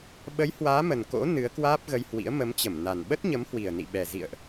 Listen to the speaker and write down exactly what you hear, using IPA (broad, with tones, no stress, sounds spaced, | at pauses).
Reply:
ɓ ə˨˦ j h w aː˨˦ m ə˨˩ n k o̰˧˥ n ɨ˨˦ ə̯ k w aː˦˥ p̚ ɣ ə˧ j h w ḭ˧˥ ə̯ m ə˨˦ m t͡ɕ ə˧˩ m n a˨˩ n ɓ ə˦˥ t̚ ɲ ə˨˦ m h w i˨˩ ə̯ n ḭ˧˨ ɓ ɛ˨˩ z ḭ˧˨ ə̯ ʔ